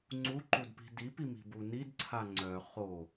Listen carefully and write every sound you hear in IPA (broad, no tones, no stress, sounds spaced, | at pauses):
ŋ͡ǀ u ǃ u d p i̤ d i p i m i̤ b u n i d ǀʰ a ŋ͡ǀ œ χ o